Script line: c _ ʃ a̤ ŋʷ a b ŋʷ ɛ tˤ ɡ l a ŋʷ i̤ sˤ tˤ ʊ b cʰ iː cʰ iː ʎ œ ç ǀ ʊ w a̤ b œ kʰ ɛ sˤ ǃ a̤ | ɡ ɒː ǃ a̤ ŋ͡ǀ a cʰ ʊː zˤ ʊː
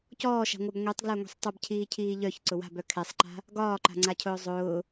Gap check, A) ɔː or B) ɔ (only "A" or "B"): A